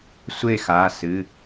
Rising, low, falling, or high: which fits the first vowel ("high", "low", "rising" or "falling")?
falling